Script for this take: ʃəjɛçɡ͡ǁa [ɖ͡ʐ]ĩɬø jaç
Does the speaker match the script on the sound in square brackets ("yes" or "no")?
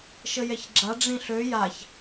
yes